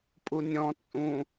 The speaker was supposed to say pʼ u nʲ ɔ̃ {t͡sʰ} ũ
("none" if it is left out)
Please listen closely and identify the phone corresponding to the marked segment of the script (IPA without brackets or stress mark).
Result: t͡sʼ